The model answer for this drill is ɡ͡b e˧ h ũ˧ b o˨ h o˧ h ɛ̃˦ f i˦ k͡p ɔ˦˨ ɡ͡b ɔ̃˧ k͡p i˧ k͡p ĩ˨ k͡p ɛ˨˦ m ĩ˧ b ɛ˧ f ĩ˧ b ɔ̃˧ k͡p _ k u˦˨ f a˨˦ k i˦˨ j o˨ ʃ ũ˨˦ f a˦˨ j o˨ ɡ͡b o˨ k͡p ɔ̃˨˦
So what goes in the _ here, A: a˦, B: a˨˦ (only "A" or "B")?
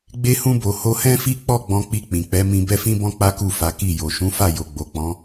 A